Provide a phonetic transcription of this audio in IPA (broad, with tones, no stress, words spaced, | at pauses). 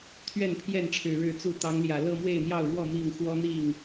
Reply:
t̪ʰɥɛ˥˨npʰjɛ˥˨nʈ͡ʂʰɻ̩˨˩ ɻɻ̩˥˨t͡su˥˨ t̪ɑ˨˦ŋljä˨˩lɤ˥˨ mwe˥˨ɪ̯n̪jɑ˥˨ʊ̯ɻwɔ˥˨ mi˥˨ŋ xwɔ˦n̪i˥˨ŋ